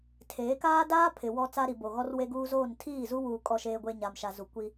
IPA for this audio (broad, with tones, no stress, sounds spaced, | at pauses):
tʰ eː˨˦ k aː˦ d aː˦ pʰ ɪ˨ w ɔ˦ t͡s a˦ ɾ i˨ b o˨ ɣ ɔ˦ r w e˦ ɡ uː˦ z oː˦˨ n tʰ iː˦˨ z u˦ w uː˨ kʼ ɔ˨ ʃ eː˨ ɡʷ e˨ ɲ a˨ m ʃ a˨ z u˨ kʷ i˦